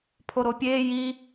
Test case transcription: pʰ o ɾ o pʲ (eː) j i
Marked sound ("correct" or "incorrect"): correct